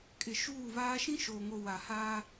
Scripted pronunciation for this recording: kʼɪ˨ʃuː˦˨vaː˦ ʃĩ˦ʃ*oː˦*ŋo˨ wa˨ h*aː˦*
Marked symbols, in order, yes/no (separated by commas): no, yes